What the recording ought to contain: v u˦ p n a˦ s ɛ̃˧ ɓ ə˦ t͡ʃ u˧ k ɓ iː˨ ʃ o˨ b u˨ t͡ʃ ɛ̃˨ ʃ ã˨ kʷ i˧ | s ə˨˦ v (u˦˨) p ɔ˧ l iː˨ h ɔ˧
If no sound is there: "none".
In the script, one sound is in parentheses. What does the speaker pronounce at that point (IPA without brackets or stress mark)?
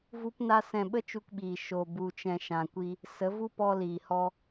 u˦